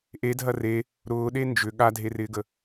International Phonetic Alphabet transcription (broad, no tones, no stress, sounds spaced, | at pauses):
ʔ e dʱ ɐ r e | ɾ ʊː ɗ e n d͡ʒ ʏ ɠ a dʱ e r ɪː ɡ ə